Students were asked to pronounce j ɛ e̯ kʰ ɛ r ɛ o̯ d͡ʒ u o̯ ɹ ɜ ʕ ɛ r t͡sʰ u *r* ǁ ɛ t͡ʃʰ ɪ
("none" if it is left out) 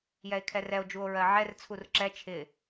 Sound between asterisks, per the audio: r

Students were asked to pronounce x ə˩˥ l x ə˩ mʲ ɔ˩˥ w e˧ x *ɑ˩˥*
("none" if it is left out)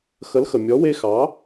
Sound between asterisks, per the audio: ɑ˩˥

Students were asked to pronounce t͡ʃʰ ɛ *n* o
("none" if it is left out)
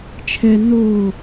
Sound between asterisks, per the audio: n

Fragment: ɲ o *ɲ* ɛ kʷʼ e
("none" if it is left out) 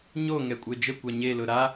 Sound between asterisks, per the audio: ŋ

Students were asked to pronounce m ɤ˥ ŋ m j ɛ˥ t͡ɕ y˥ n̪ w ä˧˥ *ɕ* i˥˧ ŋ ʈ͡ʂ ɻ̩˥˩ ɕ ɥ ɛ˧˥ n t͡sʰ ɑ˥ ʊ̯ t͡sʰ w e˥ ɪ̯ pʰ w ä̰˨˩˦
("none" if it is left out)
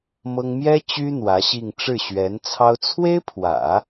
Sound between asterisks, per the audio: ɕ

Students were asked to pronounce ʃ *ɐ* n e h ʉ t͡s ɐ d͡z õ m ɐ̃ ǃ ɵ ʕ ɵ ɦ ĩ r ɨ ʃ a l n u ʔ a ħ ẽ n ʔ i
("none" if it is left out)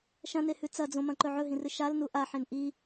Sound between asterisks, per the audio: ɐ̃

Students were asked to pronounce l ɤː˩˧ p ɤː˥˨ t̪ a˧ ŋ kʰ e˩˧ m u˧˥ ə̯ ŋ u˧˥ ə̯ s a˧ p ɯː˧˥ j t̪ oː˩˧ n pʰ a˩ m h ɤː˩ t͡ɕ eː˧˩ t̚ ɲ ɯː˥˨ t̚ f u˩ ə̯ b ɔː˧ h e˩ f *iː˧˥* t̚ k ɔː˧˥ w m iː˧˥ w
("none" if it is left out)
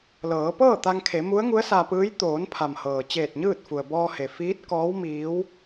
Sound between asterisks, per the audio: iː˧˥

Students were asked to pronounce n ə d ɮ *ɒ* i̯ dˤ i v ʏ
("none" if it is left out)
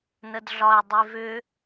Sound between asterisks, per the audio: ɒ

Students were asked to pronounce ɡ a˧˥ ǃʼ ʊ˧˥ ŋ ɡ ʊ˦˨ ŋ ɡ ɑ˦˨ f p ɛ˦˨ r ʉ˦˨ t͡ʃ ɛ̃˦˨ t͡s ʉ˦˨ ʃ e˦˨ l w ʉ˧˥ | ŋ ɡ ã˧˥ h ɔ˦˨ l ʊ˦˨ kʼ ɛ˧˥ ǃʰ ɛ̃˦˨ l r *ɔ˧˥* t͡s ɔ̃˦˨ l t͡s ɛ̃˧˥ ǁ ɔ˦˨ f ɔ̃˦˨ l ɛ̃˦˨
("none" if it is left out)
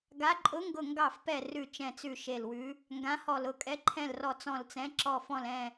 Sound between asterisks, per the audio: ɔ˦˨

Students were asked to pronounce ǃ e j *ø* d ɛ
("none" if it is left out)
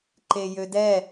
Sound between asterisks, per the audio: ø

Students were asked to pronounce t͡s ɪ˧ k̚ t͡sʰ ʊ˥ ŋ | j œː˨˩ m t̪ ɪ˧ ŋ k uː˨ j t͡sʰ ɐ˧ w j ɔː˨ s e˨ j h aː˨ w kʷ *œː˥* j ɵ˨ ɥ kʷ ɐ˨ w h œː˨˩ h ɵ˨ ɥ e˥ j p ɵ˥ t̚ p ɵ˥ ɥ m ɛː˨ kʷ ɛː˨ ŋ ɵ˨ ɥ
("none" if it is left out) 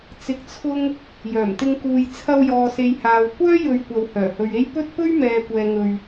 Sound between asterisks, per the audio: œː˥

